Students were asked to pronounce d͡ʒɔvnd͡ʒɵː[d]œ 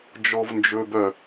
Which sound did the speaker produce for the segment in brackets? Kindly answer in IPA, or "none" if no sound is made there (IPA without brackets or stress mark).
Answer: b